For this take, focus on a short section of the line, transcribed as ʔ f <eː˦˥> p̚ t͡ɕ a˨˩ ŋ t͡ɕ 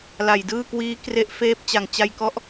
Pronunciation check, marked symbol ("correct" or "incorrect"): correct